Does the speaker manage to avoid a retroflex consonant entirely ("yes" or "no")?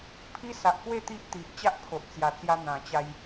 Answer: yes